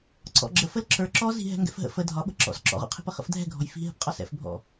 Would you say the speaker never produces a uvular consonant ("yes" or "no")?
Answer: no